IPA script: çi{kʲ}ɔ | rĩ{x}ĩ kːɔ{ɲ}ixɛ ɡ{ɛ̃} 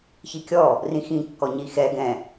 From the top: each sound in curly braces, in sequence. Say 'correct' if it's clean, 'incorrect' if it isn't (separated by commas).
correct, correct, correct, correct